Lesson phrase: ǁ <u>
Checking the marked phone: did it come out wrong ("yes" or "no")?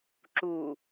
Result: no